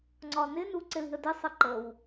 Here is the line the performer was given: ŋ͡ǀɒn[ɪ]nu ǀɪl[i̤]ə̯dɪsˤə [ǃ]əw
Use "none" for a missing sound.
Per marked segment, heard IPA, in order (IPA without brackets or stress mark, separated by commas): ɪ, i̤, ǃ